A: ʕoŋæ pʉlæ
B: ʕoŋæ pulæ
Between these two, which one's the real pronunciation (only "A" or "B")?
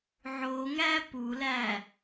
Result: B